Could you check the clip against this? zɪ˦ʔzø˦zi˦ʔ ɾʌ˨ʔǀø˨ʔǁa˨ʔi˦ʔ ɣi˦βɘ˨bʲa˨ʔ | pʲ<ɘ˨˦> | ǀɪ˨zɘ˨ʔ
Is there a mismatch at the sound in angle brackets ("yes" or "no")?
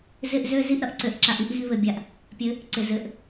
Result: no